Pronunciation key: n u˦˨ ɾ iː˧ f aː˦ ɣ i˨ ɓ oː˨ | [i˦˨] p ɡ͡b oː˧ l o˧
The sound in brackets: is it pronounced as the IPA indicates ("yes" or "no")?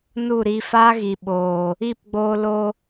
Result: yes